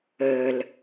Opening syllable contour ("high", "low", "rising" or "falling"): low